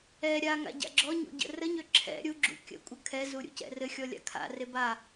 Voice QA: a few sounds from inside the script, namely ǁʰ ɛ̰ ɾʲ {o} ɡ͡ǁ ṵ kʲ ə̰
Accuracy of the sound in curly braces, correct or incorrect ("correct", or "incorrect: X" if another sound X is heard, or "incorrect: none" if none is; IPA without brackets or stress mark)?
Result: incorrect: u